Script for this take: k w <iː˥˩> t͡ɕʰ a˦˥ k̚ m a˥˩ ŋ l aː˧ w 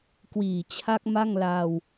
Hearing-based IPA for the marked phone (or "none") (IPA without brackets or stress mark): iː˨˩